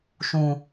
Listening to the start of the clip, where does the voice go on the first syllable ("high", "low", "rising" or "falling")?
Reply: low